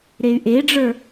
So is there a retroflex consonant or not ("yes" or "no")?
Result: yes